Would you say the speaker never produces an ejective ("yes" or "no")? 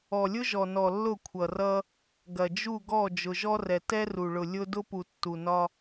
yes